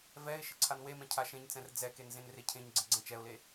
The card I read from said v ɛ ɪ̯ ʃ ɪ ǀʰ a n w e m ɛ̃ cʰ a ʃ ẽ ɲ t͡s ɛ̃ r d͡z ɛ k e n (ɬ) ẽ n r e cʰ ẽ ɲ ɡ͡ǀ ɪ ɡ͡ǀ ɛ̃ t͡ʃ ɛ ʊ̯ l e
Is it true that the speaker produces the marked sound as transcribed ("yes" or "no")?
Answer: no